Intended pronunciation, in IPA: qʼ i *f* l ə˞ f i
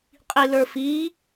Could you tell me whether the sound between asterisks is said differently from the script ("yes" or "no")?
yes